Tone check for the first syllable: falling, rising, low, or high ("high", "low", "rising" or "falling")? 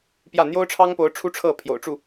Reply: falling